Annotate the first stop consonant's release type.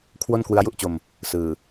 aspirated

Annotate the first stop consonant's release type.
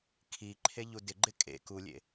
aspirated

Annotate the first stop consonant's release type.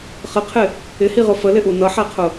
aspirated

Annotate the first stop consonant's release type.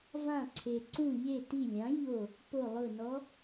click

